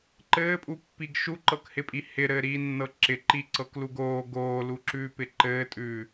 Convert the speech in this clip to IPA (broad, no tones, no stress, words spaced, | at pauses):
ǃɘːpʼupːiɡ ʃuǃɤkhɪpʼi hɪɾɘːɾiːnːɤ ǁɪǃiǀɤkluɡ oː ɡoːluǁʉːpɪ ǃɘːtʼʉː